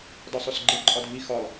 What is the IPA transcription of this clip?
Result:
d ɒ sˤ o s ɡ͡ǃ e ǃʼ ɒ dʱ i x ɒ lˠ

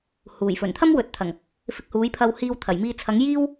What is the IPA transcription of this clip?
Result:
h uː˨˩ j f ɵ˨˩ n t̪ʰ ɐ˥ m w ɵ˨ t̚ t̪ʰ ɐ˨˩ ŋ | f ɪ˧ k̚ h uː˨˥ j pʰ ɐ˧ w h iː˧ w t̪ʰ ɐ˨˩ j m iː˧ t͡sʰ ɐ˨˥ ŋ j iː˥ w

